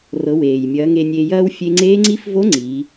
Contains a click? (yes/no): yes